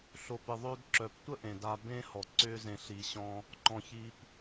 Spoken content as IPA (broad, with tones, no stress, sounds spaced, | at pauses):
ɬ o˨ p ɪ˨ ðˤ ø˧ d ǁ œ˨ p tʷ ə˦ ʔ ẽ˨ d a˧ b ẽ˦ h ɔ˨ ǀ ʏː˦ z ẽ˧ ɬ i˧ ɕ ɔ̃˦ | ǃ ɔ̃˨ ç i˧ p